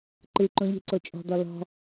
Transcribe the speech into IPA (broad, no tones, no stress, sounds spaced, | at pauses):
ǃ ɨ ǃ õ ʎ e̤ ǀ o t͡ʃʼ ɔ̤ d̪ ɔ l ɔ̤